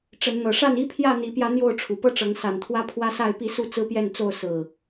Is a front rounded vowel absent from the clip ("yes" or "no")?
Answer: yes